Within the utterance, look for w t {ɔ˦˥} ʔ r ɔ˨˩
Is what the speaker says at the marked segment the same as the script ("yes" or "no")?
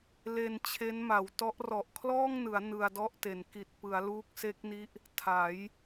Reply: yes